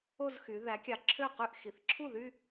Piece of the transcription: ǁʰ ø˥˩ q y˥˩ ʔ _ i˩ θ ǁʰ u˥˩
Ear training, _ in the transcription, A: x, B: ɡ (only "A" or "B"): A